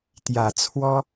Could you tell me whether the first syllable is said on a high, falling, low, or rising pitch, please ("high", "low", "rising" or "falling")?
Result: low